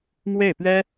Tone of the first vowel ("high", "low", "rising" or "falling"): falling